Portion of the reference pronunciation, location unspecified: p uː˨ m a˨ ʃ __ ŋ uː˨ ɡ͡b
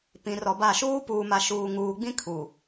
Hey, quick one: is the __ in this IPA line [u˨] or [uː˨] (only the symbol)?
uː˨